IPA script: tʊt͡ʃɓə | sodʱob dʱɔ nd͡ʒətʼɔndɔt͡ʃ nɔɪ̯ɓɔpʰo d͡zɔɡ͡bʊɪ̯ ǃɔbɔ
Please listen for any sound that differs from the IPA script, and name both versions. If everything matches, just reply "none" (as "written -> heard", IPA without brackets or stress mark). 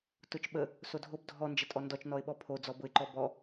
ɡ͡b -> b